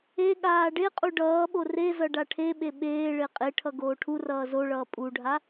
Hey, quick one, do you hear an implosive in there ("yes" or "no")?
yes